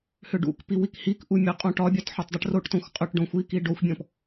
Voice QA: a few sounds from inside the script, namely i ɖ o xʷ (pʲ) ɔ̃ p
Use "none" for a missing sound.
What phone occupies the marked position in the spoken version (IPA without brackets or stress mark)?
bʲ